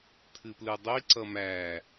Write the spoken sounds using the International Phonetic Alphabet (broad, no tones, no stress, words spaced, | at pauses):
t̪ʰɨplɯdˤi ǀʌmæ